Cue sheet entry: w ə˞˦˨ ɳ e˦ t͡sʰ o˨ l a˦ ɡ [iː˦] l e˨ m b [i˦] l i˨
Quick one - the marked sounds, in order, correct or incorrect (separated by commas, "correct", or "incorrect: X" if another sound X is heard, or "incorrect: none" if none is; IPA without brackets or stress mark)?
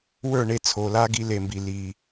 incorrect: i˦, incorrect: i˨